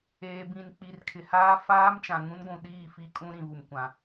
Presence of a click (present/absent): absent